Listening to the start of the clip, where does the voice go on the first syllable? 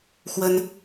high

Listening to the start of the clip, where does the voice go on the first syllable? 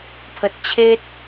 low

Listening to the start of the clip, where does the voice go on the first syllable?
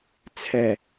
low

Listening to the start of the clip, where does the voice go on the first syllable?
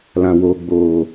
low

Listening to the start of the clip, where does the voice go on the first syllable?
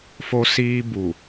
high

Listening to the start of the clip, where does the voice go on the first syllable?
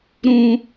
high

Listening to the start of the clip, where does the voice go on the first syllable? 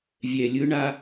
low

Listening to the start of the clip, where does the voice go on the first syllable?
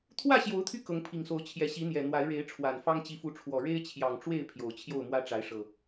falling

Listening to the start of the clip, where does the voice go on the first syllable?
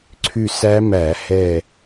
falling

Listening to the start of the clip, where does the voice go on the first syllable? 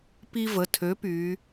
high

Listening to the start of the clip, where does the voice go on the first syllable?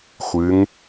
rising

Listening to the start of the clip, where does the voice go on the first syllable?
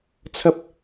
high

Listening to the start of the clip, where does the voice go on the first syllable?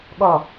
falling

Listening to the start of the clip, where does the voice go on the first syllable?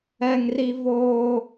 high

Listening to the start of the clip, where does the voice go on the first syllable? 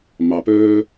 low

